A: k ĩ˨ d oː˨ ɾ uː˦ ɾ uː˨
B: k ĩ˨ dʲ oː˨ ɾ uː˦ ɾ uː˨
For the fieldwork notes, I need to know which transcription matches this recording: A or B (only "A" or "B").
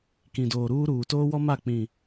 A